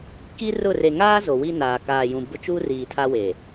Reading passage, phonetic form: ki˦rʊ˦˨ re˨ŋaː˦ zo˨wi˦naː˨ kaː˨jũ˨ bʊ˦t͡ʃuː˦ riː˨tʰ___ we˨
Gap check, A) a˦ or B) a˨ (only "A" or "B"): A